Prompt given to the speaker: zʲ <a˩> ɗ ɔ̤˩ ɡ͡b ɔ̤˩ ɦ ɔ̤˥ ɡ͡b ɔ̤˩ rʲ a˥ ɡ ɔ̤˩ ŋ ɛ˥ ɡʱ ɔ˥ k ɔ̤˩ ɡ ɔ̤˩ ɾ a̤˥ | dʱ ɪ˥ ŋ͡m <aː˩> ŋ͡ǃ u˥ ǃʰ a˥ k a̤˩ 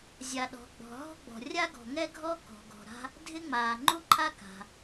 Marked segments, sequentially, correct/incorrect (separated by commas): correct, correct